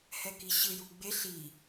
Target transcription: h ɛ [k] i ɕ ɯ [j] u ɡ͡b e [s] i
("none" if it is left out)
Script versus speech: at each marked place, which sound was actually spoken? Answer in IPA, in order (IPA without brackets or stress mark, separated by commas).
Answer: k, j, ɬ